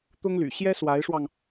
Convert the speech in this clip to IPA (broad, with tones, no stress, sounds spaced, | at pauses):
t̪ ʊ˥ ŋ l y̰˨˩ ɕ j ɛ˥ s w a˧˥ ɪ̯ ʂ w ɑ˧ ŋ